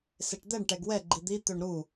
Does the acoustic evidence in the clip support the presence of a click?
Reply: yes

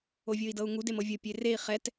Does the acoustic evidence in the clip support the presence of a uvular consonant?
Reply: yes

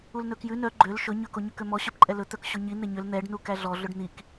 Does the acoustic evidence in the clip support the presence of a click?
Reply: yes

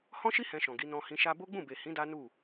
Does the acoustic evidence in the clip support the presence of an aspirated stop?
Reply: no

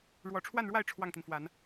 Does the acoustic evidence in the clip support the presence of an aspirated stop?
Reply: yes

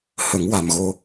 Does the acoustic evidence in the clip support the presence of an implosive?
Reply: no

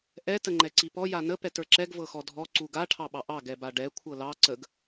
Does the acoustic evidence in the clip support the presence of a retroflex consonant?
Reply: yes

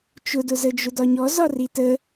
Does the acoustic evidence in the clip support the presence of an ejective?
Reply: no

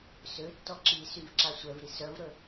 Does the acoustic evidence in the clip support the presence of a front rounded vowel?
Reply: yes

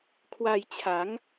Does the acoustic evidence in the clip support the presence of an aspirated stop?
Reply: yes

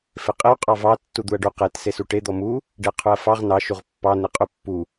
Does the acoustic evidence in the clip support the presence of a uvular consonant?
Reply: yes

